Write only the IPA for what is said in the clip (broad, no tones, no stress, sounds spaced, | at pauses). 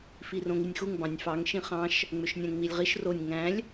f i r õ ŋ i nʲ x u ŋ b ɑ̃ nʲ f ɑ ŋ ʃ ĩ χ ɑ̃ ʃ | ŋ͡m ø ʃ nʲ æ̃ ŋ ŋ͡m i lʲ ʁ i ʃ r o nʲ ŋ æ̃ lʲ